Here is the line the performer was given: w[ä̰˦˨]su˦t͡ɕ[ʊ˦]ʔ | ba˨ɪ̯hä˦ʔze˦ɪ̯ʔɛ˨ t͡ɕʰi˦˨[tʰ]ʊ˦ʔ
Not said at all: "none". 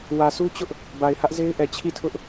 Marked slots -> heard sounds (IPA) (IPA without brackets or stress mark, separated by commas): ä˨, ʊ˦, tʰ